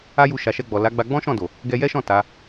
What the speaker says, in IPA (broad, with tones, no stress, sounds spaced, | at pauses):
a˦ j u˧ ʃ a˨ ʃ ɛ˧ ɡ͡b ɔ˨ l a˨˦ ɡ͡b a˧ ɡ͡b ɔ̃˦ ʃ ɔ̃˦˨ d o˨ | ɡ ɛ˧ j ɛ˦ ʃ ɔ̃˦˨ t a˨˦